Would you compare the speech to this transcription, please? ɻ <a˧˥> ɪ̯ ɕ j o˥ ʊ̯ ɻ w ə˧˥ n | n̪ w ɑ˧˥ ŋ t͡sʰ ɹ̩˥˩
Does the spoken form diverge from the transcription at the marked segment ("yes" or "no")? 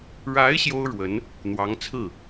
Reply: no